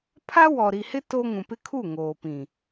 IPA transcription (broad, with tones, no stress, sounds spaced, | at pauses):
pʰ a˦ w ɔ˨ ɾ i˨ h ɪ˦ t o˦ ŋ ũ˨ p ɪ˦ kʰ u˦˨ ŋ oː˨ p ĩ˨